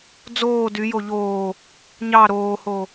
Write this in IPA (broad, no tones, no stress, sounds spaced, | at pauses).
d͡z oː d y j o ʎ oː | ɲ ɑ ɾ oː h o